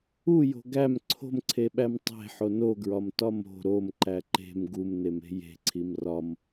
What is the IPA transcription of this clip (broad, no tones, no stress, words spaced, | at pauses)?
ujo̤ ɡæm ǀʰo̤mǀʰeɓæm tˤe̤ħo noɡɹɒmtɒ mo̤ ɾomǃæ ǃe̤m ɡumneme̤ je̤ǀʰim rɒm